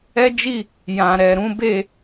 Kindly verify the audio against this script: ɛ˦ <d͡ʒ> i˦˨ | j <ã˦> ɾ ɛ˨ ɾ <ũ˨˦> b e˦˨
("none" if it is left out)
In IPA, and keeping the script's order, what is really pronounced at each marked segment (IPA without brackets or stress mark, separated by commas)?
d͡ʒ, ã˨, ũ˨˦